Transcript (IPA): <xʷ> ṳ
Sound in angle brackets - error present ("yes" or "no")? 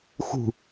yes